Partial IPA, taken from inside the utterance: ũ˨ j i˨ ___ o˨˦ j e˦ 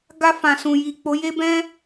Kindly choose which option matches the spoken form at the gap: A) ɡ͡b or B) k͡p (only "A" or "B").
B